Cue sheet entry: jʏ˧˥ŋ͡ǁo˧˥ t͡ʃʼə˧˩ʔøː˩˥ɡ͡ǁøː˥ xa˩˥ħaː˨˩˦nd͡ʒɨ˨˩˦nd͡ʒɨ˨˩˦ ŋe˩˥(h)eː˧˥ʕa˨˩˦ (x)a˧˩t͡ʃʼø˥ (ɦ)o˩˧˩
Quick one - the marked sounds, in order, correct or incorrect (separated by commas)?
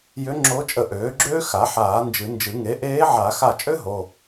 incorrect, correct, correct